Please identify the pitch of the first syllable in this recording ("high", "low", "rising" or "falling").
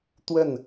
falling